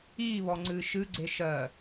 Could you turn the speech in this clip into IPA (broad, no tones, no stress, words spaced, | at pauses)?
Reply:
iːβɔŋ͡ǀɨː ʃɨɡ͡ǀe ʃɜ